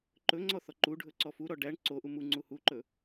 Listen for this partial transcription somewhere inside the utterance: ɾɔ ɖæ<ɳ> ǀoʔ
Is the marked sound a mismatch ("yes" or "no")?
no